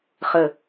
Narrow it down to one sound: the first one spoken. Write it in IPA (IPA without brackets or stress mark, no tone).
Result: χ